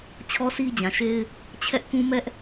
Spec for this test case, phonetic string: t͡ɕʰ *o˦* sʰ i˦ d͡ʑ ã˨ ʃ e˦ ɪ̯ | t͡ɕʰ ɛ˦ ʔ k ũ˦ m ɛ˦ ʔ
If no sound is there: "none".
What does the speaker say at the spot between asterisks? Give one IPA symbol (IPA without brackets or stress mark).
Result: ɔ˦